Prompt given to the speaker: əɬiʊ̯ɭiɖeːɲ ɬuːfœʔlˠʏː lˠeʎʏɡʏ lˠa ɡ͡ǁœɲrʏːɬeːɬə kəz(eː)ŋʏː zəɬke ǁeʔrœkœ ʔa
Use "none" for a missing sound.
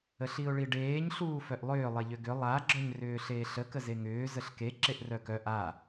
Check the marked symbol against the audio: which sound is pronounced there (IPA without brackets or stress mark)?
e